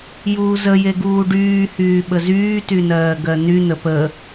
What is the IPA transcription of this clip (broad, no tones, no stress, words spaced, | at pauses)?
juːzəje ɡuːɖyːhyː ɓəzyːtynɜː ɡɜn̪yn̪ə pə